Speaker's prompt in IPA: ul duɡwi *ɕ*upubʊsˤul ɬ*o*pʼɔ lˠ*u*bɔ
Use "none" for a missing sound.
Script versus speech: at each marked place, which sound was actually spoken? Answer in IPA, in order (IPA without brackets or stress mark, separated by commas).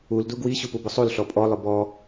ɕ, ɔ, ʊ